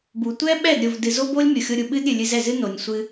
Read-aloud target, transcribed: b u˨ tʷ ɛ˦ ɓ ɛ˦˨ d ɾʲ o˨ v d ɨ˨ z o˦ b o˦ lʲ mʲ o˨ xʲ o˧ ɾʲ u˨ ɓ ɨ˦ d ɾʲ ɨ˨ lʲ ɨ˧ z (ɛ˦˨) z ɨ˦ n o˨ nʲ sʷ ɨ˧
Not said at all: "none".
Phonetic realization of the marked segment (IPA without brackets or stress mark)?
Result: ɛ˦˨